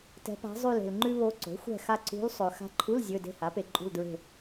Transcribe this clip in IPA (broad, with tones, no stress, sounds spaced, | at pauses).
t ɛ̤˧˥ p a̤˧˥ zˤ ʉ˦˨ l e̤˨ l ŋ͡ǃ ʉ˥ β o˧˥ ǀ o̤˩˥ xʷ ɛ̤˦˨ x a˦˨ ǀ ṳ˧˥ l sˤ ɵ˨ x a̤˧˥ ǃʰ u˧˥˧ l zʲ ɵ˧˥˧ d e̤˦˨ h a˩˥ p e˨ ǃʼ ṳ˦˨ l d ɹ e̤˦˨